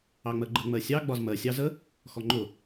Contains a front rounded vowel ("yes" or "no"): no